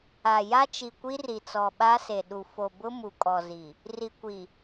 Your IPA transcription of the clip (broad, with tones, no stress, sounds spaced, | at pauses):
a˨ j a˦ t͡ʃ i˨ kʷ i˦ r i˨ t͡s ɔ˨ ɓ a˦ s e˨ ɗ u˨ f o˨ b ʊ˦ m u˨ kʼ ɔ˨ z i˨ | r i˨ kʷ i˨